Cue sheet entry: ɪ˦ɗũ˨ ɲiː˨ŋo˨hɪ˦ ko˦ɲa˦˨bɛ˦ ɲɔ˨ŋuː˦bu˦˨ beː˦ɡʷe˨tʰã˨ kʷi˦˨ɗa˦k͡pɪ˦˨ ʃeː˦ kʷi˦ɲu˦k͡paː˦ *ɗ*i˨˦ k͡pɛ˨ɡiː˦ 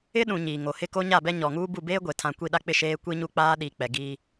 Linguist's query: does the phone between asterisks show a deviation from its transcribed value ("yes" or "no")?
no